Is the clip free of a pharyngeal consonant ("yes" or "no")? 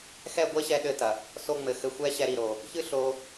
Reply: yes